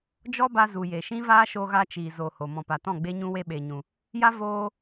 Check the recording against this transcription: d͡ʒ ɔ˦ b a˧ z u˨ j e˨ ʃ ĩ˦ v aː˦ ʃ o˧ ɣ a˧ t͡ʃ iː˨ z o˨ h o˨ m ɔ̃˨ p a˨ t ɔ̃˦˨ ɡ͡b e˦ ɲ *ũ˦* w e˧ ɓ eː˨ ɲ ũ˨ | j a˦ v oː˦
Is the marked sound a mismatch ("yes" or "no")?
no